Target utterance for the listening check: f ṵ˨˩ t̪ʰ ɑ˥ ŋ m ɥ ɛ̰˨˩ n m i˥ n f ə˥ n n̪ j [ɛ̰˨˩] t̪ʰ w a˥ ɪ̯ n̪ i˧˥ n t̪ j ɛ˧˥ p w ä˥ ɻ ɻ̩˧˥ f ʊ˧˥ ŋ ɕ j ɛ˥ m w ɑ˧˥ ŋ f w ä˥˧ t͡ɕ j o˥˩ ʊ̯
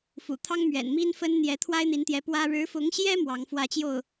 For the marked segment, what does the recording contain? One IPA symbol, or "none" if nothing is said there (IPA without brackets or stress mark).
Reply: ɛ˧˥